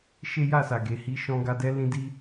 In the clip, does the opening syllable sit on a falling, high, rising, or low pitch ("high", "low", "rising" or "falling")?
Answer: high